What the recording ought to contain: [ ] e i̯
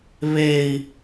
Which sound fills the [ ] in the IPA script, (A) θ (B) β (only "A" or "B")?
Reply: B